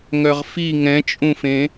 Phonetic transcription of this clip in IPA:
ŋœʁfi ŋɛ̃t͡ʃʼũfẽ

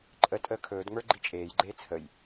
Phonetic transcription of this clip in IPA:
ǃʼə tʼəːkʰɵːdŋ͡mə˞ ɡ͡ǃit͡ʃʼeːjɡ͡ǃeː t͡sʰəj

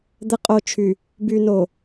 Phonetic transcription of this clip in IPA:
d̪ə˨qʼo˨t͡ʃʰy˨ | by˨no˨

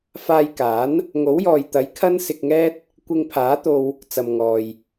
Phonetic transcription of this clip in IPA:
faː˧jkaː˨˥n | ŋo˨˥wjɔː˨jt̪ɐ˨˥j kʰɐ˥nsɪ˧k̚ŋɛː˥t̚ | kʷɪ˧ŋpʰaː˨˥t̪o˧w | t͡sɐ˨m ŋɔː˨j

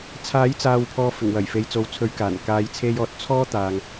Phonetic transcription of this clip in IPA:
t͡sʰaː˨˥jt͡saː˨wpʰɔː˨ fɪ˨˩ŋwɐ˨˩j fe˨jt͡so˨wt͡sʰɵ˨˧ɥkaː˨˩n kaː˨˧jt͡sʰe˧jɔː˨t̚ t͡sʰɔː˥ t̪aː˨ŋ

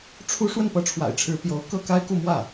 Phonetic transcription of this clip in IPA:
ʈ͡ʂʰu˥ ʂwə˥˩npɤ˧˥ʈ͡ʂʰwa̰˨˩ɪ̯ʈ͡ʂʰɻ̩˧˥ pjo˧˥ʊ̯ kɤ˥˩ka˥ɪ̯ku˥˧mwä˥˩

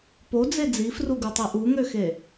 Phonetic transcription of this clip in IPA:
pod͡ze d͡zifruɡutˤi ʔuŋøxe

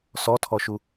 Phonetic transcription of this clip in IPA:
sɔtʰɔʃu

